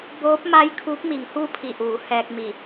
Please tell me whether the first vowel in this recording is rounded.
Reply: yes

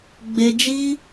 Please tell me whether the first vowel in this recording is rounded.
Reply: no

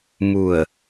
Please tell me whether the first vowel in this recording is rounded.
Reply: yes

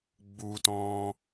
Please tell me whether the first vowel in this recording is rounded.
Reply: yes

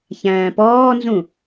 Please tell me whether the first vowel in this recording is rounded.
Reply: no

